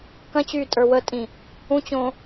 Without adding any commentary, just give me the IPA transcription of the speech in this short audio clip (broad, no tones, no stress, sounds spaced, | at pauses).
k ɐ̃ t͡ɕ y tʼ ə˞ w ə tʼ ĩ | ũ t͡ɕ õ